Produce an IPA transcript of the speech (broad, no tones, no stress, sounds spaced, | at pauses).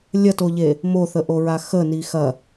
lʲ ɐ t o ʎ e | m o θ ə ʔ o ɹ a x ə n i x ɐ